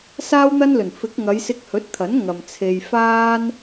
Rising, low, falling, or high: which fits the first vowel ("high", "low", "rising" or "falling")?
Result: high